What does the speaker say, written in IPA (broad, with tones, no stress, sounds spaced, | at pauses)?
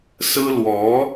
s ɹ̩˥ l w ɔ˧˥